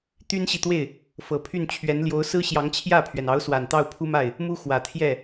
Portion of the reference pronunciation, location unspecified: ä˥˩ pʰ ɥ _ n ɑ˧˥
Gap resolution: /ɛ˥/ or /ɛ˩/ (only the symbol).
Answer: ɛ˩